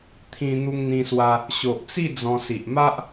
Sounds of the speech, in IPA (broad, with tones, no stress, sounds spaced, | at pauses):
t̪ʰ ĩ˧ n̪ u˧ ŋ n̪ ĩ˧ s w a˧ | ɕ o˨ ʔ t͡s i˥˧ d͡z ɔ̃˧ s i˨ ʔ m a˦ ʔ